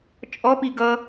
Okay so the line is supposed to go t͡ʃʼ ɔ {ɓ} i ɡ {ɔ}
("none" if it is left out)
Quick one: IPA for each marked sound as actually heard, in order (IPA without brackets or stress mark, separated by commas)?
p, ʌ